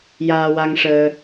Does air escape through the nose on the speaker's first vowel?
no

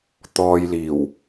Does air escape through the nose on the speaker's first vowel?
no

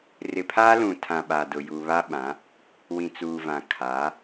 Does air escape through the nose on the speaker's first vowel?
no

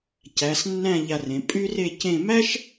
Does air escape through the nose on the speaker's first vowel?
no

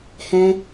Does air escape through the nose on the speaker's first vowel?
yes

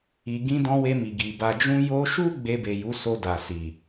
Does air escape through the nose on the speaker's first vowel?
no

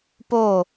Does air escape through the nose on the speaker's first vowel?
no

